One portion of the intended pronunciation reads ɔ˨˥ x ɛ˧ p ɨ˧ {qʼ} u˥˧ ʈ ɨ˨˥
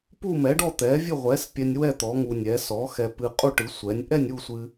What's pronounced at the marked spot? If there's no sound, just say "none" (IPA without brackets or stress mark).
qʼ